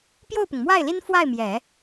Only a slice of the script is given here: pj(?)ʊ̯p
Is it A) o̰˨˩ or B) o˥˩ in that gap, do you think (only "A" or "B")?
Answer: B